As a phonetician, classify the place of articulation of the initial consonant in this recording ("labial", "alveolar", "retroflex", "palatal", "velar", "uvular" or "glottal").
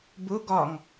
labial